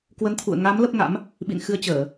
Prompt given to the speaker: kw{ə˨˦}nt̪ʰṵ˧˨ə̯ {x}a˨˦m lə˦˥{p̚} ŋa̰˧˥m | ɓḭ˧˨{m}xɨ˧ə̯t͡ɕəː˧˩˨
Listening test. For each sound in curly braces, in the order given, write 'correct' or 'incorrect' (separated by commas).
correct, incorrect, correct, incorrect